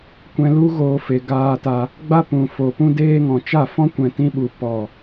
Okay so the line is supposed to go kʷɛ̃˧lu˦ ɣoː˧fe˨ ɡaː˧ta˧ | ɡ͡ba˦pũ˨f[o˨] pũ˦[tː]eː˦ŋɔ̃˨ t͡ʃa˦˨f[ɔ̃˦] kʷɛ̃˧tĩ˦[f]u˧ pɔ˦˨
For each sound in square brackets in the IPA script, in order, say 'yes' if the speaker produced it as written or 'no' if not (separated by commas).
yes, no, yes, no